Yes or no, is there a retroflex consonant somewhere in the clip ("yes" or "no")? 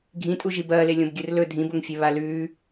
no